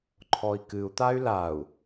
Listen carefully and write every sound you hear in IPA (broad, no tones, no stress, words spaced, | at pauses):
ǃʰɔi̯kɨu̯t̪ay̯ lau̯